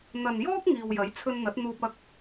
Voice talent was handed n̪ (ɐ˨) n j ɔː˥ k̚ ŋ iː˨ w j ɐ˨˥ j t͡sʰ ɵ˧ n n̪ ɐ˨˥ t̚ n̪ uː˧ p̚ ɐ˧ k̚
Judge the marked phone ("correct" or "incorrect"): correct